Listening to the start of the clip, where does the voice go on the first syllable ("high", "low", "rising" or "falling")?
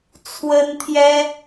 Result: high